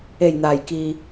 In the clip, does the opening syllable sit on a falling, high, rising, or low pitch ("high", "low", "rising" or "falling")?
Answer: low